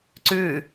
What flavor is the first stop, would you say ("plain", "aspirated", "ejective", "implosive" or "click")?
click